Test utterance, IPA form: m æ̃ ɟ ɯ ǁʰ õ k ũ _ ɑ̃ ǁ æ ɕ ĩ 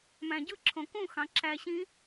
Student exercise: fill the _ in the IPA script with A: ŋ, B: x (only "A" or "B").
B